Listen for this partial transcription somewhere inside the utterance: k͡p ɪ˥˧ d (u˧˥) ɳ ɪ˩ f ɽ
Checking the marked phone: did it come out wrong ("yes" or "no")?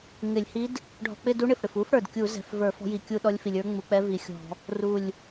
no